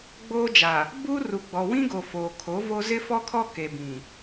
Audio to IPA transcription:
ɡ͡b oː˦ d͡ʒ a˨ | b u˦ r u˨ ɡ͡b ɔ˨ w ĩ˦ ɡ o˨ f oː˨ kʰ o˨˦ v o˦ z ɪ˦ f ɔ˦ kʰ ɔ˦ k e˨ b ĩ˨

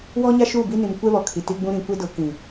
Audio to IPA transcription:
w ɔ˦ ɲ a˦ ʃ uː˦˨ b i˦ n ĩ˨ m kʷ ɛ˦ β ɔ˨ kʰ i˨ t i˦ ɡ͡b ũ˦ ɾ ĩ˨ kʷ e˦ d ʊ˨˦ k ĩ˨

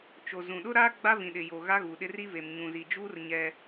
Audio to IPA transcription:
t͡ʃ o˨ z ũ˨ ɗ ʊ˦ ɾ aː˦ ɡ͡b a˦ v ĩ˨ ɗ ɪ˨ j o˨ ɣ a˦ ɣ uː˨ ɗ ɪ˦ r i˦ v e˨ m ɲ ũ˨ z i˨ d͡ʒ uː˦ r ɲ ɛ˦

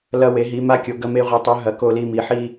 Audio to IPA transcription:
l ɐ˧ w e˩˧ ɦ i˩˧ m a˧ kʲ o˩˧ ɡ ɐ˧ m e˧ ʁʷ i˩˧ tˤ ʉ˩˧ ɦ ɐ˩˧ k o˧ l i˧ m i˩˧ ħ i˧

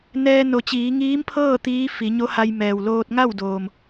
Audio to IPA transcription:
n ɛː˧ n o˩˧ t͡ɕ iː˩˧ ŋ iː˧˥ m pʰ ɤː˥˨ t̪ iː˧˥ f i˩˧ ɲ o˧˥ h a˧ j m ɛː˩ w l oː˧ t̚ ŋ a˥˨ w d oː˩ m

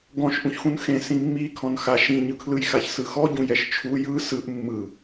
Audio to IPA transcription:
ɡ ɔ̃ ʃ ʔ ũ ç x ũ n x ẽ s ĩ mː i kʰ ɔ̃ n x a ʃ ĩ ɲ ɯ kʰ l ɯ j x a ç s ɯ x ɔ ɟ ũ j ɛ ʃ t͡ʃʰ u j ɯ s ɯ ʔ mː ɯ

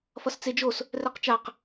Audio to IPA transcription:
f ʌ s t͡s e d͡ʒ o s | r ɛ q t͡ʃ a q

